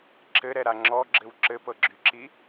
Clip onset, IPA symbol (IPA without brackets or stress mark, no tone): ǁ